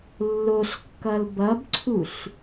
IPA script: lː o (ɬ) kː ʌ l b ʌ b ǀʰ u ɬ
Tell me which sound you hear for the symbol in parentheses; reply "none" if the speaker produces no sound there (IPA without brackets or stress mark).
ɬ